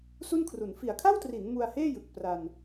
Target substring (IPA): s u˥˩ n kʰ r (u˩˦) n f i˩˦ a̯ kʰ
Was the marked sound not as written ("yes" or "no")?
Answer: no